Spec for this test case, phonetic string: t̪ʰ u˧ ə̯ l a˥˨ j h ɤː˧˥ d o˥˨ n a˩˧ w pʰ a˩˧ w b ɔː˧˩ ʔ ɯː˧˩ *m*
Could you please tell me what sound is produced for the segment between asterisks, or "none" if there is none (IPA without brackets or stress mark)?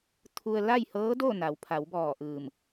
m